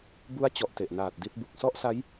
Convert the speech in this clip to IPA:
b u˦˥ a̯ t͡ɕ ɔ˨˩ ʔ t e˨˩ ʔ n aː˨˩ t̚ d i˦˥ t̚ b u˨˩ k̚ s ɔ˥˩ ʔ s a˦˥ j

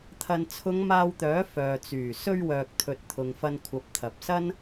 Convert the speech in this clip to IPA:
t̪ʰ ɐ˨ n t͡sʰ ʊ˨˧ ŋ m aː˧ w t̪ œː˨˥ f œː˨ t͡s yː˨˩ s ɵ˧ ɥ w œː˨ k̚ t̪ʰ ɵ˨ t̚ t̪ʰ ʊ˨ ŋ f ɐ˧ n kʷʰ ɐ˨˥ p̚ t̪ʰ ɐ˨ p̚ s ɐ˥ n

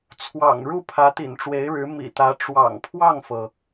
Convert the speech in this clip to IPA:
t͡sʰ w ɑ̰˨˩ ŋ ɻ u˥˩ pʰ ä˧˥ t̪ ḭ˨˩ n ʈ͡ʂ w e˧˥ ɪ̯ ɻ ɻ̩˧˥ m ḭ˨˩ t̪ ä˧˥ ʈ͡ʂ w ɑ̰˨˩ ŋ pʰ w ɑ˥˩ ŋ f ɤ˩

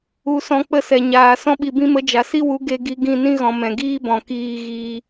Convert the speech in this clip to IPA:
u˨ s ɔ̃˨ k͡p ə˦˨ s ɛ˨ ɲ aː˨ s ɔ̃˧ ɓ i˨ b ĩ˧ m ə˨˦ d͡ʒ a˨ s i˦ w u˨˦ ɡ e˧ ɡ i˧ ɡ ĩ˦˨ n ĩ˦ ɣ ɔ̃˨ m ɛ̃˨ ɡ iː˦ b ɔ̃˨ k iː˧ ɣ iː˧

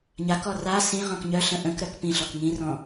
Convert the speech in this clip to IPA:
ɲ a k ɔ r a s ĩ ʁ ɔ̃ k ɲ œ ɬ ə̃ ʔ ə̃ k ɾ œ k p ĩ ɬ ɔ k ŋ ĩ r ɔ̃

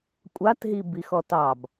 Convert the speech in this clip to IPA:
kʷʼ a t ɦ i b i x ɔ t ɑ b

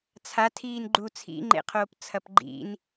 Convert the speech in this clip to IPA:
t͡sʰ a tʰ iː n ɡ͡ǃ u t͡sʰ ḭ ŋ͡ǃ ḛ qʰ oː p t͡sʰ ɐ p ɡ͡ǃ ḭ n

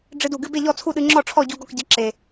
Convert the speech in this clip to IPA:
ɖ͡ʐ ɨ˧ d u˨˩ ɡ ɨ˧˥˧ b e˥˨ ʎ ɔ˥˨ t͡sʰ u˥˨ ɗ ɨ˧ ŋ͡ǁ ɔ˥˨ ʈ͡ʂʰ ɔ˥˨ ɟ u˧ ɡ ɔ˥˨ k ɟ ə˧˥˧ ǁ e˨˩

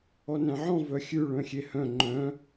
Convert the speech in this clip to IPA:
ɔ n æ̃ ʕ ɔ̃ v œ xʲ ʉ ɭ œ̃ xʲ e h œ̃ ŋ͡ǃ œ̃

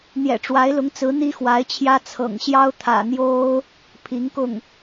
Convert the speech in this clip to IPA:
n̪ j ɛ̰˨˩ ʈ͡ʂ w a˧˥ ɪ̯ l ʊ˧˥ ŋ t͡s ɹ̩˧˥ n̪ i˥ x w a˧˥ ɪ̯ t͡ɕʰ j ä˥ t͡sʰ ɤ̰˨˩ ŋ ɕ j ɑ˥ ʊ̯ t̪ʰ ä̰˨˩ n̪ j o˥ ʊ̯ | pʰ i˧˥ ŋ k ʊ˥˩ ŋ

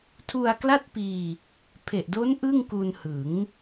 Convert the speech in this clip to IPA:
tʰ u˧ a̯ k l a˥˩ t̚ p iː˧ | pʰ e˨˩ ʔ d o˦˥ n ʔ ɯ˥˩ ŋ k u˧ n h ɯ˩˦ ŋ

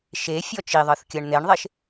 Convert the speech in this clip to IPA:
ʃ e fʲ ɔ t͡ʃ i ðˤ ɤ θ kʲ ɤ ɳ n̪ e ɳ ðˤ e ʃ

